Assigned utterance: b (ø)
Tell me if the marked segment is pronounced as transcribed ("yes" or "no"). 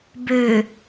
yes